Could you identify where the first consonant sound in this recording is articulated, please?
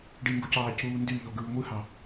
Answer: retroflex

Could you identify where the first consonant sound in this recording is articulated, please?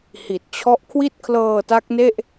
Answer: glottal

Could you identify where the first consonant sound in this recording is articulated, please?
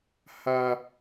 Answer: glottal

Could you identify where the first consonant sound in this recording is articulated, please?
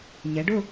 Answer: palatal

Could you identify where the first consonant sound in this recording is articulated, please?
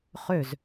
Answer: uvular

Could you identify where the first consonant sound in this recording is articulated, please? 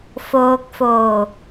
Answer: labial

